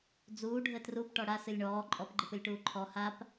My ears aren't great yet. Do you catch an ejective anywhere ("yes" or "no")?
yes